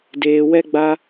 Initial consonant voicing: voiced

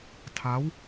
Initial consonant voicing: voiceless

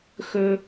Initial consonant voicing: voiceless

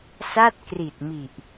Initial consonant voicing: voiceless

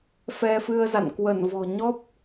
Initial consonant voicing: voiceless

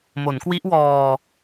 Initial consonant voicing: voiced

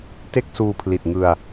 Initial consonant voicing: voiceless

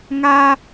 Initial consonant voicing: voiced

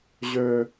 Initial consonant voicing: voiced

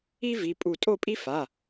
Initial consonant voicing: voiced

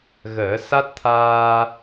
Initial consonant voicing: voiced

